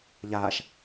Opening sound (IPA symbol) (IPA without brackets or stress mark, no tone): ʎ